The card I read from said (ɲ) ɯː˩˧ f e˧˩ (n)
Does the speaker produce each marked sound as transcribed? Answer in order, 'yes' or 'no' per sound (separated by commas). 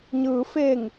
yes, no